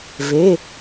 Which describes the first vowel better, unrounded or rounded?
unrounded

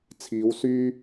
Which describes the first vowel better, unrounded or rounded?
unrounded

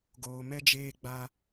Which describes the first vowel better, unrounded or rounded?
rounded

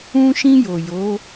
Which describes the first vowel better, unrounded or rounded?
rounded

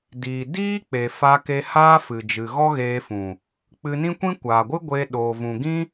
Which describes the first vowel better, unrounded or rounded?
unrounded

